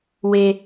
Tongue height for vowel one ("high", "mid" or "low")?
mid